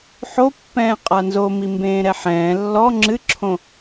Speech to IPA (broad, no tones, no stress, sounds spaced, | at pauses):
ħ o pː ɛ̃ː qʼ a n z o m i m b ẽː ɾ ɛ ħ ɛ̃ː lː ɔ ŋ͡ǁ ɨ ǁʰ õ